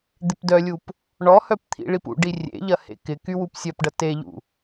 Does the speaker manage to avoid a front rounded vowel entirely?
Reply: no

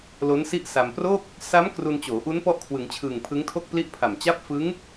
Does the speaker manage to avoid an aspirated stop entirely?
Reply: no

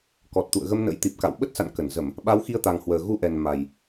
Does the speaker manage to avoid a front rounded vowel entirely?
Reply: yes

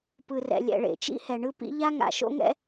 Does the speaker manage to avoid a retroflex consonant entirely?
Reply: no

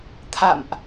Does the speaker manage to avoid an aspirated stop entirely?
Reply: no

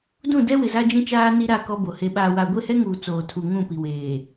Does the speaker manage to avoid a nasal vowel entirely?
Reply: no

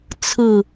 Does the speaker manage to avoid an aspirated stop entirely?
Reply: no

